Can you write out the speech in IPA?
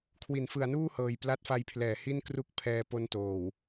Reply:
kʰ w i˩˦ n f ɯ˩˦ a̯ n uː˥˩ h ɤː˨˩ j p l a˦˥ t̚ f a˧ j pʰ l ɛː˩˦ h i˥˩ n k r u˥˩ k̚ pʰ ɛː˧ p o˦˥ n t oː˨˩ w

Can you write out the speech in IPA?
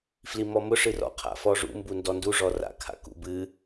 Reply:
f l i m ɔ m ʊ ʂ ɨ r ɔ̰ qʰ a̰ f ɔ ʐ ṵ m b u n d ɔ n d u ʐ ɔ r a̰ kʰ a̰ k ṵ b ɨ

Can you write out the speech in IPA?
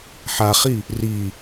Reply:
ħ a χ i | r i

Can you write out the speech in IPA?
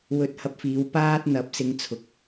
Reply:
w ɵ˧ t̚ h ɐ˧ p̚ f iː˨˧ w p aː˥ t̚ n̪ ɐ˨˥ p̚ s ɪ˧ ŋ t͡sʰ ʊ˨ k̚

